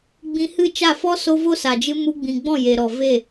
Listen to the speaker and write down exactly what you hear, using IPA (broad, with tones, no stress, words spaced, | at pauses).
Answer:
ɡ͡bĩ˧hɨ˦˨t͡ʃa˦˨ fɔ˦ so˦ vo˦sa˨d͡ʒɨ˧ mu˧ɡ͡bĩ˨ɡ͡bɔ̃˦˨ je˨ɾɔ˨ ve˦˨